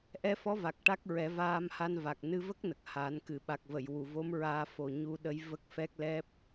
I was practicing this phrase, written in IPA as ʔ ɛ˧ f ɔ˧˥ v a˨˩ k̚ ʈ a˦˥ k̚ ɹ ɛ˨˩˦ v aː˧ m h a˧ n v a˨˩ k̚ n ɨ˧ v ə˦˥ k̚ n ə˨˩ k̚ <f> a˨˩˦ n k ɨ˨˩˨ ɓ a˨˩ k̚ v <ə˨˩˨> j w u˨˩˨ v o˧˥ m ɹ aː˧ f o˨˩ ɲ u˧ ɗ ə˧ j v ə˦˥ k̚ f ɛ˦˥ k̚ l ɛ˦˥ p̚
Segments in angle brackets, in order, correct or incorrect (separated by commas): incorrect, correct